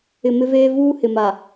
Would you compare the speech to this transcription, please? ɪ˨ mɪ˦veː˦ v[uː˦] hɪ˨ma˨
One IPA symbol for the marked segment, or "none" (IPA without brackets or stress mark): uː˦